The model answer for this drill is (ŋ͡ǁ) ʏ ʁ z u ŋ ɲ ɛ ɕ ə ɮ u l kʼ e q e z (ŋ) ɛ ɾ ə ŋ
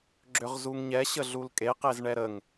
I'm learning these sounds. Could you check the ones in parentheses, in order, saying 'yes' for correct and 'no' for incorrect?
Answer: no, no

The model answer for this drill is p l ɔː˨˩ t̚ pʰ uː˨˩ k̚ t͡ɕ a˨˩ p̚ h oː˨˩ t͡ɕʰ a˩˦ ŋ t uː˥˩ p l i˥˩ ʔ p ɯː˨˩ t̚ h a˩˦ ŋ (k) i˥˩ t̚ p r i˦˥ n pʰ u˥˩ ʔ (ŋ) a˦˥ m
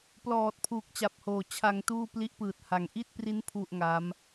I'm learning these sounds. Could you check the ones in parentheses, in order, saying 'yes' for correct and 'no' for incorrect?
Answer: no, yes

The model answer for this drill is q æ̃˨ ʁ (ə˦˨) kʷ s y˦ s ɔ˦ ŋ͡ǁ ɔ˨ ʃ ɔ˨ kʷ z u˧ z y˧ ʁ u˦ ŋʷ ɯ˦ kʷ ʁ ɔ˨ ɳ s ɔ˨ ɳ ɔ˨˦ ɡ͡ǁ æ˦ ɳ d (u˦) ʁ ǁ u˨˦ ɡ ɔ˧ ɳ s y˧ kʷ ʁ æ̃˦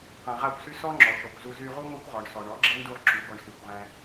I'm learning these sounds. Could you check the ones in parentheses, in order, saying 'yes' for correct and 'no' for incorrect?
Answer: no, yes

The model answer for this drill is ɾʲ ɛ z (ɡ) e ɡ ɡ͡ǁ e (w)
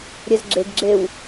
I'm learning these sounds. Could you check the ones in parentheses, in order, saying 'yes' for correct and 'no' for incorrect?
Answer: no, yes

